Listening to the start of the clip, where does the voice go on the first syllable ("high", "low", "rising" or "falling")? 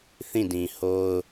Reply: falling